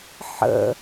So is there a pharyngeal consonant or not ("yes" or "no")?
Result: yes